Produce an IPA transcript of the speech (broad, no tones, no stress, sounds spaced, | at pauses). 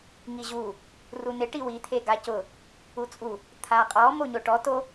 ŋ i ʑ u | r u n ɪ ʈ i w i t̪ʰ e ɡ a c ʊ | u t͡sʼ u | t̪ʰ a qʼ ɔ m o ɲ o ʈ ɔ t o